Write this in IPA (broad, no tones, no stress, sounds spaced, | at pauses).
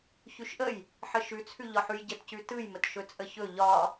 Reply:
ç ʉ ʃ ʔ ə j | ħ ə ʃ ʉ t͡sʰ ʉ ʎ ɒ ħ ʉ j ɟ ə t c ʉ t ɯ j m ə t ʃ ɵ t͡sʼ ə ç ɵ ʎ ɒ